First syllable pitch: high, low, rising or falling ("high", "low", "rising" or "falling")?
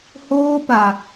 high